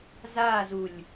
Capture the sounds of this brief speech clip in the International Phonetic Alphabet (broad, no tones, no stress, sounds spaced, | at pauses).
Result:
z aː z u lʲ